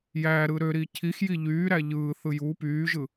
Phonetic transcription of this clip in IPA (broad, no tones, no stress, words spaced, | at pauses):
jæɾɯ ɾøɾi cʰix jiʎyːɾæ ʎɯːθɯ ju pyːʒɯ